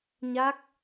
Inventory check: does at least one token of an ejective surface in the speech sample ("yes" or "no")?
no